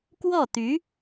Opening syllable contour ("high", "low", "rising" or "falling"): falling